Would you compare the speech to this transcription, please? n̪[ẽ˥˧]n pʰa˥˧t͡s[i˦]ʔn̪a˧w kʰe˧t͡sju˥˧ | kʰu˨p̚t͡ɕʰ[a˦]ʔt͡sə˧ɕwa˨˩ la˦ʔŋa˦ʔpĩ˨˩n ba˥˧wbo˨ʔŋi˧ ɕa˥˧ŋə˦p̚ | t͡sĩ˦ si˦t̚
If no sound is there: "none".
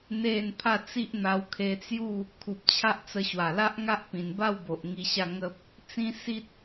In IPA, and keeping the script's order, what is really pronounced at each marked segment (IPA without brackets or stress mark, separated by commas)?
e˥˧, i˦, a˦